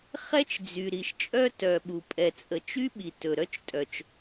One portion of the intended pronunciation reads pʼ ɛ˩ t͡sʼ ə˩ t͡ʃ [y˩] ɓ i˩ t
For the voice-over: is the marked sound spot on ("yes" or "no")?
no